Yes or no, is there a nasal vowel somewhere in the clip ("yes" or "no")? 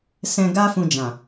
yes